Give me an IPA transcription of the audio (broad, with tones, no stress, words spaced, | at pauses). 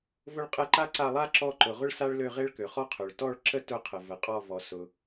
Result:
vʊ˦˨ɭqʼɛ˦˨ǃa˥ǀa˦˨ lˠa˥ ǁɔ˦˨ǃʊ˩ ʁʊ˥ɭsa˥ɭlø˦˨ʁe˥ɭ kø˩χɔ˥qʰø˩ɭ tɔ˦˨ɭ ǁə˥ tʊ˦˨qʰə˩və˩ qʼɔ˦˨vɔ˩ sʊ˩